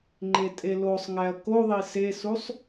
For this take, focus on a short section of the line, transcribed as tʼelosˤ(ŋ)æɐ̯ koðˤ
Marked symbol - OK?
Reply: yes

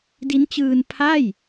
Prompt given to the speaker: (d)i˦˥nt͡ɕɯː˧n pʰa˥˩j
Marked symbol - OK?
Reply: yes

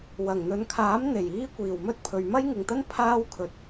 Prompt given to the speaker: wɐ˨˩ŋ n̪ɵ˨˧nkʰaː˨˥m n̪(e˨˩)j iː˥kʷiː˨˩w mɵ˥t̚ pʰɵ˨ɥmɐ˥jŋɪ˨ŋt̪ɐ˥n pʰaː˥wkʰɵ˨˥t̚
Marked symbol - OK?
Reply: yes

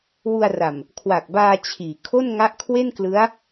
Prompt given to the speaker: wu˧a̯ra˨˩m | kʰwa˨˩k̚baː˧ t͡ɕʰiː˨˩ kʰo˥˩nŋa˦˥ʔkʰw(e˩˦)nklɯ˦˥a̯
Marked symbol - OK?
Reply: no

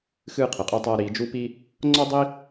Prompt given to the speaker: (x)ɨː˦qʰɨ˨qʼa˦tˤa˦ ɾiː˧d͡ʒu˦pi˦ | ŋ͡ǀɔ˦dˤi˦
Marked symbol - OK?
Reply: yes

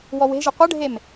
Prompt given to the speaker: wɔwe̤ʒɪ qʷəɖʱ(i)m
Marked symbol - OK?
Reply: no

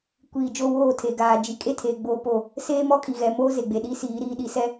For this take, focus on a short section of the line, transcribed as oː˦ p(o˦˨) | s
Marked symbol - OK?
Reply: yes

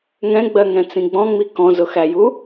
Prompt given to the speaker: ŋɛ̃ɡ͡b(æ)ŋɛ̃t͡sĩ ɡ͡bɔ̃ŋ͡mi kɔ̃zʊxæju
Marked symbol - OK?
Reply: no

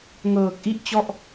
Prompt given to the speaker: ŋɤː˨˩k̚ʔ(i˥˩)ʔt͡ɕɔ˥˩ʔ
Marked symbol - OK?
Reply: yes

